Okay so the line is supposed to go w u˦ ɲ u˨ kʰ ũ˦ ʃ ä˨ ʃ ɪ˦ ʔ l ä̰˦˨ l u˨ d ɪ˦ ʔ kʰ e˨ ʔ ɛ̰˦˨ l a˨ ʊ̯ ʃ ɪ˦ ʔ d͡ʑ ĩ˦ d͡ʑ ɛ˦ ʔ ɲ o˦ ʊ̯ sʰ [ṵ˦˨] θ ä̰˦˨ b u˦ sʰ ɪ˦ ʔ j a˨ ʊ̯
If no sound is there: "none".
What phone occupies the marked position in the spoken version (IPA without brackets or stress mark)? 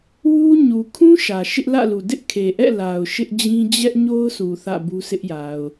u˨